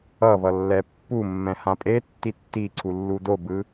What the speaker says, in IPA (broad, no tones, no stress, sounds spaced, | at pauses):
ʌ β ʌ lː ɛ pː u mː ɛ̃ h ã pʼ e tː i tː i ǀʰ u lː u d o b ɯ